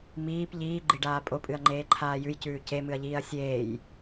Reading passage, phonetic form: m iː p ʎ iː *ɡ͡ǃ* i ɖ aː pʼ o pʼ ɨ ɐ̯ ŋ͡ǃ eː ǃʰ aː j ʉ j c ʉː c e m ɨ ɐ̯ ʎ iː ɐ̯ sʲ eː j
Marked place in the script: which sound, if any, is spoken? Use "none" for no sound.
ɡ͡ǃ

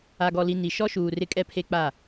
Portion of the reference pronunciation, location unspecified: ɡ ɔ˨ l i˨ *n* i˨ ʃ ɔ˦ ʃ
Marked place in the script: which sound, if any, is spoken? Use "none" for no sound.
n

